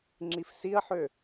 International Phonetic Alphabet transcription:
ŋ͡ǁ i f s i ɐ̯ ħ ø

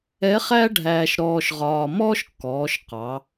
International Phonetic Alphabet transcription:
ɛ˧˥ χ æ˥ ɖʱ æː˧ ʃ ɾ ɔː˧ ʃ ʁ ɒː˧ m ɔː˥ ʃ kː ɔː˩˧ ʃ q ɑ˩˧

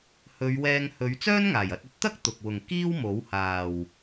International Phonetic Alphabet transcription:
h ɵ˨˧ ɥ w ɛː˧ ŋ h ɵ˨˧ ɥ t͡s œː˥ n ŋ aː˨˩ j ɐ˧ t̚ ɵ˧ t̚ t̪ ɐ˥ k̚ t̪ ʊ˨ k̚ w ʊ˨ ŋ k iː˥ w m o˨˥ w h aː˨ w

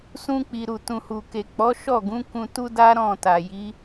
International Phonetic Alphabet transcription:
s ũ˧ k͡p i˨ ɾ u˨ t ũ˨ h u˨ k e˨ k͡p ɔ˨˦ ʃ ɔ˦˨ ɡ ũ˨˦ k ũ˧ t u˦ d a˦ ɾ ɔ̃˦˨ t a˨ j i˨˦

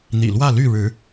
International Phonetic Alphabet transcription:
n̪ ḭ˨˩ l w ä˥˨ l y˥˨ ɻ ɻ̩˨˦

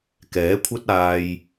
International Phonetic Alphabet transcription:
k ɛː˨˥ kʷʰ ɐ˥ t̚ aː˧ j

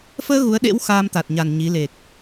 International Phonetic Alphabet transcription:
f əː˧ ɣ u˨˦ ə̯ ɗ ḛ˧˥ w x aː˧ m t̪ a˨˩ t̚ ɲ a˨˩ n ɲ i˨˦ l e˨˩ k̚

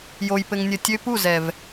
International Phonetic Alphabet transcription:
j o˨ j p ɘ˨ ŋ nʲ ɘ˨ tʲ ø˦ p u˦˨ z ɛ˨ v

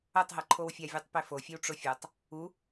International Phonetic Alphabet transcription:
ɤ tˤ ɦ ɤ ǃʰ o w fʲ a vʲ e tˤ p e f o fʲ ɛ w ʈ͡ʂ o fʲ ɤ tˤ | u

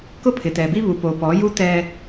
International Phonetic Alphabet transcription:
k ʊ˦ pʰ ɪ˨ t ɛ˨ b i˦ β u˨ p o˨ p ɔ˨˦ j u˦ t ɛ˦

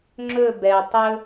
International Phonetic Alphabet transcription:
ŋ͡ǁ ɵ b ɛ tˤ ɵ

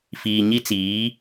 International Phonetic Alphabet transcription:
f iː˨ ɲ i˦ t͡s iː˨˦

